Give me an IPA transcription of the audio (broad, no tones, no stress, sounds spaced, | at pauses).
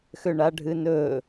x ø ɳ a ɖʱ ɨ n ɵ